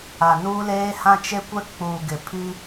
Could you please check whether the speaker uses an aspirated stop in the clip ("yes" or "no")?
yes